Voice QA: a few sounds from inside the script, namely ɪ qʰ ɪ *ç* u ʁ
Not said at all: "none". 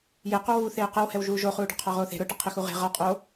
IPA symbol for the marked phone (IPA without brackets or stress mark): x